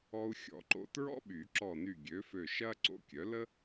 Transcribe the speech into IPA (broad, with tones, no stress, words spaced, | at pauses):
ɔ˧u̯xʲɔ̰˨˩˦ǃo̰˧ tɹɔ̰˥ɓy˨˩˦ ǁɔ˧˩ny˧˩ ɡʲø˩˥fø˧˩ ʃɐː˥ǀo̰˧˥kʲœ˩˥ lə˥